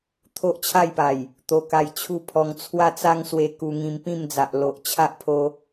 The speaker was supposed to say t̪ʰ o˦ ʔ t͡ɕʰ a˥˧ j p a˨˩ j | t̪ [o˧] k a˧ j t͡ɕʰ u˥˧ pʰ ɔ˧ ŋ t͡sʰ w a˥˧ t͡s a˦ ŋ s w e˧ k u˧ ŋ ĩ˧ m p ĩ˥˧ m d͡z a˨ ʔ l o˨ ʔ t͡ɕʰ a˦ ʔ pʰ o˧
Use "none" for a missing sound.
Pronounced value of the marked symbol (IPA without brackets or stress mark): o˧